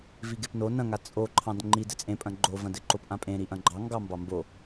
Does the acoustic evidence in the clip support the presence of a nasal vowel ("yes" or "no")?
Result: yes